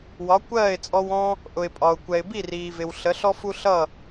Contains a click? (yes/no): no